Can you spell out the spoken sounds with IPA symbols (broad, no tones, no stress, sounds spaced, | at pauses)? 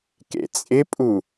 k ḛ t͡sʼ ɪ pʼ u